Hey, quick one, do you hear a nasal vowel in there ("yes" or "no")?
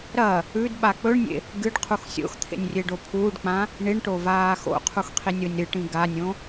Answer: yes